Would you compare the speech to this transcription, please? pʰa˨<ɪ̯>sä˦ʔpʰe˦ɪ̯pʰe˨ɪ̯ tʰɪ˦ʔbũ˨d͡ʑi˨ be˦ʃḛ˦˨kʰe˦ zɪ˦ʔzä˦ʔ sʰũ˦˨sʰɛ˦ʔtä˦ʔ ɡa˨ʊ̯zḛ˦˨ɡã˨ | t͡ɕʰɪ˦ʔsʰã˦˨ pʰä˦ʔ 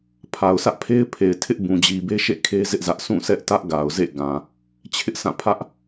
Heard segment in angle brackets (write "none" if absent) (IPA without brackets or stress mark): ʊ̯